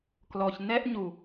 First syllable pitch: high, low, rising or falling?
low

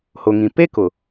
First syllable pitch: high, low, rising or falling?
low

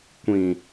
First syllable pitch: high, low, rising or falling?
low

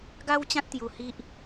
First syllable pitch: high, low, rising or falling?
high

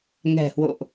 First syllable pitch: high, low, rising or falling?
low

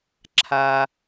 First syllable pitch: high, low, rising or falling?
high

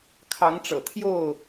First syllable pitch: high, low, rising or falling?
rising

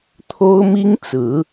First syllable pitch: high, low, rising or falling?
high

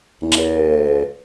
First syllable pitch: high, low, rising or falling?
low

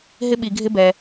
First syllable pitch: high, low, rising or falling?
high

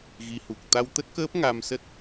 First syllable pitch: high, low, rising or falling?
rising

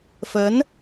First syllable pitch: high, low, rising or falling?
rising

